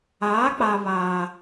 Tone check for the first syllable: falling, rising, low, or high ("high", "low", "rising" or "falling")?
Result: rising